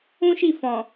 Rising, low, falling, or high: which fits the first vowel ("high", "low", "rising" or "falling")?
high